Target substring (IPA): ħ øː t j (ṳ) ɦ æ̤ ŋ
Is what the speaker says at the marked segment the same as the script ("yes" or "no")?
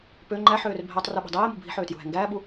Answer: yes